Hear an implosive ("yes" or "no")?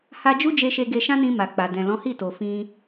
no